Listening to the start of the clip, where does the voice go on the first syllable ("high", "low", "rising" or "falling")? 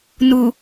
low